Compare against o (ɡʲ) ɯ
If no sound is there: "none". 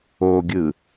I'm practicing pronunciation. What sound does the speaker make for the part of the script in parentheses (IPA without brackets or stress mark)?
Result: ɡʲ